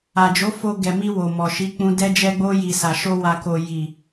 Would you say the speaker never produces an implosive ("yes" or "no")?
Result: yes